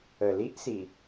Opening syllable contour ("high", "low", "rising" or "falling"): low